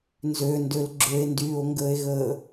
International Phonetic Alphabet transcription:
n z ø n d ø l ɡ͡ǁ ø e̯ n d yː o̯ ŋ ɡ əː e̯ ɣ əː

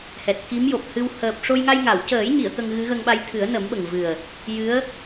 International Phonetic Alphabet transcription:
h ɛ˨˩ t̚ k i˧˥ m j o˨˩ p̚ h ɨ˧ w h əː˨˩ p̚ ʂ o˧ j ŋ a˧ j ŋ a˨˩˨ w c əː˨˩˦ j ɲ i˨˩˨ ə̯ k ə˧ ŋ ɣ ɨ˧˥ ɣ ə˧ ŋ ɓ a˧ j t̪ʰ ɨ˨˩˦ ə̯ n ə˨˩˦ m ɓ ə˨˩ ŋ v ɨ˨˩ ə̯ | j ɨ˧˥ ə̯

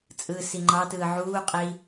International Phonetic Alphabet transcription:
t͡sʼ ɯː s i ŋ͡ǃ ɑ t ɯː ʕ uː qʼ i

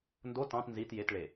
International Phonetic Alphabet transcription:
n d o t ɑ̃ t n z i t j e t ɭ e

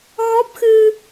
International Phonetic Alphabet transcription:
ɣ ɔ˦˥ p̚ x ɨ˧

